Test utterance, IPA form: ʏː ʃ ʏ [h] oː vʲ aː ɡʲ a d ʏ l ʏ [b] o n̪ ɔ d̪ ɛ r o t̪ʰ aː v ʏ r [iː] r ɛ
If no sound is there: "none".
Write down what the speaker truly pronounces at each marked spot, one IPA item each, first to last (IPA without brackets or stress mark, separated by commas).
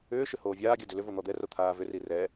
h, v, i